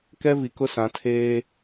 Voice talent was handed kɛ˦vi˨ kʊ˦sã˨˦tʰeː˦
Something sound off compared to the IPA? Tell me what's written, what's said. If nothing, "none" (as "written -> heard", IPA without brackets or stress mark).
none